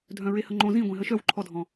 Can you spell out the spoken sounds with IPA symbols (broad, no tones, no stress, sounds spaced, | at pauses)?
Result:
dʱ œ̃ ɹ e h ə ŋ͡ǃ õ z ĩ ɡʷ ẽ ɦ ə ʃ œ w ǃʰ ɔ dʱ ɔ̃